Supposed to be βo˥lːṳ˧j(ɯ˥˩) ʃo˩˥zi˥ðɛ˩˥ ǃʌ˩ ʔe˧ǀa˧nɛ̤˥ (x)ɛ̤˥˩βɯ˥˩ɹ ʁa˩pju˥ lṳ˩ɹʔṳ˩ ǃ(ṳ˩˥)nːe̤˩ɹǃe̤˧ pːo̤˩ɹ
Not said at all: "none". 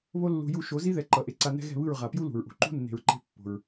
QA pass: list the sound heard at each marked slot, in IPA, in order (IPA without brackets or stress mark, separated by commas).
u˥˩, ɣ, ṳ˥